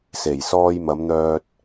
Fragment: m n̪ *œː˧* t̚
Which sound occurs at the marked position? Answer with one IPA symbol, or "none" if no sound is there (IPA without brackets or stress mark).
œː˧